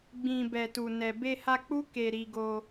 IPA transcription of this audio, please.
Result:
ɡ͡bĩ˨ bɛ˨tu˨nɛ˨ be˧ha˧k͡pu˦ ke˧ ɾi˧ɡo˧

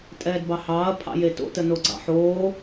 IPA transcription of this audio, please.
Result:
tʼɛːdbɑhɑːɐ̯ pʰɑ̰jeto̰ tənoɡ͡ǀɑ̰ħoː

